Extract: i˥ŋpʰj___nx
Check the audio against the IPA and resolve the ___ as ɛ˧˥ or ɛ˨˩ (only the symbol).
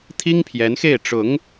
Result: ɛ˧˥